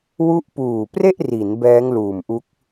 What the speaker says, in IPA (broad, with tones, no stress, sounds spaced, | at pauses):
w u˦˥ ʔ p uː˨˩ p r e˥˩ ʔ r i˩˦ n b ɛː˦˥ ŋ l uː˨˩ m ʔ u˦˥ k̚